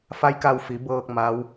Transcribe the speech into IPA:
f a˧˥ j k a˧ w f i˩˧ b ɤː˧ k̚ m a˧˥ w

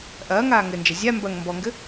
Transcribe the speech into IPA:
ʔ ɐː ŋ aː ŋ ɘ n d͡ʒ ɐ zʲ a m b ɐ ŋ m b ɔ ŋ ɡ ɘ

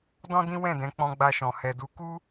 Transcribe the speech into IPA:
d ɔ̃˦ d ĩ˦ w ɛ̃˦˨ d ɛ̃˨˦ k͡p ɔ̃˧ ɡ͡b a˧ ʃ ɔ̃˨ h ɛ˨ d u˨˦ k u˦

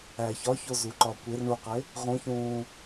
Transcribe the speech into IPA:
æ ç ɒ ç o z u ǃ ɒ kʷ e r ɳ u q e | ʁ ũ ç ũː

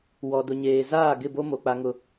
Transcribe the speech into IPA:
w ɔ˨ d ʊ˨ ɲ eː˨ z aː˦˨ ɡ ɪ˦˨ b o˦ m o˨ k͡p a˦ ŋ ʊ˦

